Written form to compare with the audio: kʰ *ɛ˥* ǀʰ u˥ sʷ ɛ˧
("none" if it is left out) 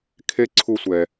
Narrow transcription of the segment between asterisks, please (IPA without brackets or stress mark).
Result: e˥